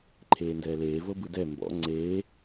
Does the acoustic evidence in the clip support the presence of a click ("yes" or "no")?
yes